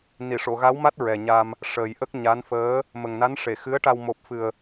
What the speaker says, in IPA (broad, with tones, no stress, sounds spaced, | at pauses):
n i˨˩˨ ʂ o˨˩˨ ɣ a˧˥ w m a˦˥ t̚ ɹ ɛ˨˩ ɲ a˧ m | ʂ əː˨˩ j ʔ ə˦˥ k̚ ɲ a˧˥ n f əː˧˥ | m ə˨˩ ŋ n a˧˥ n ʂ e˨˩˨ x ɨ˧˥ ə̯ ʈ a˧ w m o˨˩ p̚ f ɨ˨˩ ə̯